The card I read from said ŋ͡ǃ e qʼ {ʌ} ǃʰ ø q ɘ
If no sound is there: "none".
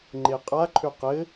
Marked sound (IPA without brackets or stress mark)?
a